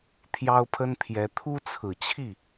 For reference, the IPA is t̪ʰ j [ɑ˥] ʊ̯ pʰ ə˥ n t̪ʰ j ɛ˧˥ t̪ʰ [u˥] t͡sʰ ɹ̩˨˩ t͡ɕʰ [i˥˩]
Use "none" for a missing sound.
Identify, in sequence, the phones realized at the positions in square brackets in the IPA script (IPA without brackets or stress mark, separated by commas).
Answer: ɑ˥, u˥, i˥˩